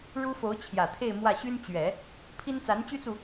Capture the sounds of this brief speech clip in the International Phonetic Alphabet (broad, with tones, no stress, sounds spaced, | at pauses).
ɻ u˥ f o˧˥ ʊ̯ t͡ɕʰ j ä˨˩ t̪ʰ e˥˧ ɪ̯ m w ä˥˩ ɕ y˥ n t͡ɕ ɥ ɛ˨˩˦ | pʰ i˥ n t͡s a˧˥ n t͡ɕ y˥ t͡s u˨